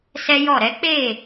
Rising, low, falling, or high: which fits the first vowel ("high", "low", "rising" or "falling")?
high